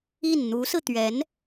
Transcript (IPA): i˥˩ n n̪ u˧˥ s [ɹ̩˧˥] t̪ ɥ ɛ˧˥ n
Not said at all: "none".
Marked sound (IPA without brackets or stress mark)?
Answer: ɹ̩˧